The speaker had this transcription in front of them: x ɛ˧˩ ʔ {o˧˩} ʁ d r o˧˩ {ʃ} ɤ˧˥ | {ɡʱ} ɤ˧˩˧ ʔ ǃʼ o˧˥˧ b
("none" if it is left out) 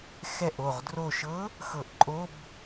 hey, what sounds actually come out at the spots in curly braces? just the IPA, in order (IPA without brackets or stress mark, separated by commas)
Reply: o˧˩, ʃ, x